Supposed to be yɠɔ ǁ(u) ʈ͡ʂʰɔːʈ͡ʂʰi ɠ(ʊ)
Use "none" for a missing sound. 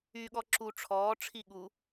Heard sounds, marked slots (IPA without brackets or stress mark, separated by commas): u, u